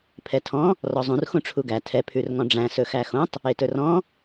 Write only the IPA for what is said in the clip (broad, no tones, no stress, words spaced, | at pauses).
pʰɛtʰɔ̃ | rɔzˤũr xũʈ͡ʂʰuɡæ tʰɛ pʰʉrŋɔ̃ɖ͡ʐæ̃ sɵxæxõtˤ | etɵrɔ̃